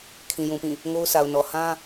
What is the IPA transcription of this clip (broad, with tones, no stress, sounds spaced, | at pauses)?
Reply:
kʰ ĩ˨ j ũ˨ p ĩ˦˨ | ŋ o˦ ʊ̯ s a˨ ʊ̯ n ɔ˨ h ã˦